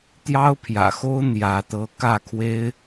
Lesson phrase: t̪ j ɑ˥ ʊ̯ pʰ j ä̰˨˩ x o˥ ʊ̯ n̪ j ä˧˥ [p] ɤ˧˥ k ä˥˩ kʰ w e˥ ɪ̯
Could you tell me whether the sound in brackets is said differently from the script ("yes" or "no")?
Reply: yes